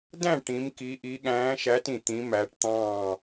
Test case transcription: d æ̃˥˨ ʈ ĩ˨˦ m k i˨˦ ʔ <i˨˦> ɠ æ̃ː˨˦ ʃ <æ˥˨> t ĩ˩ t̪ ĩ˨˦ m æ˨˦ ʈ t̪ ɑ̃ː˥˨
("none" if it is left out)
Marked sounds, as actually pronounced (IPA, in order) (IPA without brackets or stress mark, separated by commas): i˨˦, æ˨˦